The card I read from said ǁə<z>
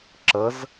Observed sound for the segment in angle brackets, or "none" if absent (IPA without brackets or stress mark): z